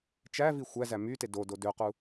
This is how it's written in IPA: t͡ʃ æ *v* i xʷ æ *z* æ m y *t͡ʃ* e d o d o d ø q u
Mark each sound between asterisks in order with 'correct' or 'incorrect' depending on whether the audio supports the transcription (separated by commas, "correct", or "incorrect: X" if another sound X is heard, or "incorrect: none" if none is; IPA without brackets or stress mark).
correct, correct, incorrect: t